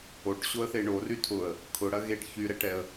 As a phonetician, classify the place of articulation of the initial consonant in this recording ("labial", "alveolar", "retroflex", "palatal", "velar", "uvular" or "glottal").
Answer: retroflex